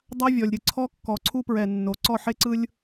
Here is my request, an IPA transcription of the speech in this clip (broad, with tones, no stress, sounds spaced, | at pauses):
dˤ a˦ vʲ ɔ˨ lʲ ɾʲ ɯ˨ ǀʰ ɔ˦ kː ɔ˨ ǀʰ u˦ p ɹ ɛ˨ nː o˨ ǀ ɔ˦˨ ħ e˦ ǀ ɯ˦ lʲ